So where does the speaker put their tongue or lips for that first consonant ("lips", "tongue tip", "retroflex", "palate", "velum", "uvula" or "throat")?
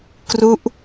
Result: velum